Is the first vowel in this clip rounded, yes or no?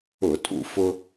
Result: yes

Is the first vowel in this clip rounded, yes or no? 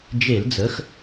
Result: no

